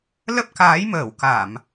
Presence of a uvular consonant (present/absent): absent